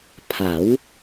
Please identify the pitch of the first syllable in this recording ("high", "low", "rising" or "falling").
rising